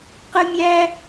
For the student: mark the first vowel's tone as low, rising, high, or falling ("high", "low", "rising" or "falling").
high